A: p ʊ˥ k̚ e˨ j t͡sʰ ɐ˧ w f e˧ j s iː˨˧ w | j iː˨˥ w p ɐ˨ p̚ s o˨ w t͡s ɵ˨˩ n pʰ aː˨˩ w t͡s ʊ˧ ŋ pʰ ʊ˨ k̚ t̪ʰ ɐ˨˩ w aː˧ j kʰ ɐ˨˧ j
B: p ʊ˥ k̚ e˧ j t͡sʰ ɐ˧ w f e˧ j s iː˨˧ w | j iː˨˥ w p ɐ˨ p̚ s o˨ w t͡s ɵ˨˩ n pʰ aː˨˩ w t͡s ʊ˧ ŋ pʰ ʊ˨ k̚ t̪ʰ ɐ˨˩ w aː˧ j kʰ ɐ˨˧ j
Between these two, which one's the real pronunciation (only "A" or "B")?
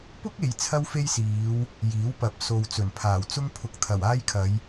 A